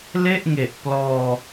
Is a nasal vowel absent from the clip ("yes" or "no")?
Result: yes